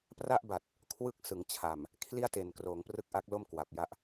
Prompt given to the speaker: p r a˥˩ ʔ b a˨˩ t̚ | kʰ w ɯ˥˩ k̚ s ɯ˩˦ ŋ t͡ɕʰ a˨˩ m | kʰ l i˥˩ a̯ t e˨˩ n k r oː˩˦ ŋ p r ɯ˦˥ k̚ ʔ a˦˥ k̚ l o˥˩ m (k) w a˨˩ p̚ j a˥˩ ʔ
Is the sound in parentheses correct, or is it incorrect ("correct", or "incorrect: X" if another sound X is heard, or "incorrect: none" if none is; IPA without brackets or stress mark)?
correct